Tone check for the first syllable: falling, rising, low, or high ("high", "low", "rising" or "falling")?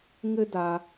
high